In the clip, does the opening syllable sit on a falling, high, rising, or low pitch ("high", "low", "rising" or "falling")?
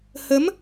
rising